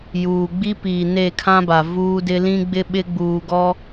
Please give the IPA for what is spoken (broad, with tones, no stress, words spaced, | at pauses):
juː˨ɡ͡bi˦piː˨ ne˦˨kʰã˦ba˨ vuː˦dɪ˦ lĩ˦ɡ͡bɪ˦ɓɪ˦ ɡ͡buː˨ɡɔ˦